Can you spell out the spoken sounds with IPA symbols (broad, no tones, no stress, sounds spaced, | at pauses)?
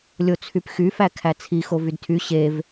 lʲ o t͡sʰ y p x y f æ kʰ æ t͡sʰ i x o v y d tʰ y ɕ e v